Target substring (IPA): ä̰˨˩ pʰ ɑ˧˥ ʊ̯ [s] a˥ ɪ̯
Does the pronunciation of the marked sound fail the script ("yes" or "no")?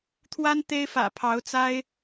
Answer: yes